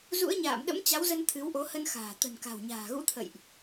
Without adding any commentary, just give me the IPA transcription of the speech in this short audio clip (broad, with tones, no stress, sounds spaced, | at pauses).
z ṵ˧˥ ə̯ ɲ a̰ː˧˨ m ɗ ə̰˧˥ m t͡ɕ a˨˦ w z ə˧ n t̪ʰ ɨ˨˦ w ʔ o˨˦ h ə˧ n x a̤ː˨˩ t̪ ə̤˨˩ n k a̤˨˩ w ɲ a̤ː˨˩ ɣ ṵ˧˥ t̪ʰ ə̰˧˨ j ʔ